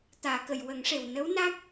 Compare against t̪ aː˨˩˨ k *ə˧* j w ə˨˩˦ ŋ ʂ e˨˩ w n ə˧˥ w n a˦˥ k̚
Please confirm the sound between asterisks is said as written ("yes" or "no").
no